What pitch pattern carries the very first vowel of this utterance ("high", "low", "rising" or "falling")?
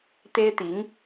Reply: high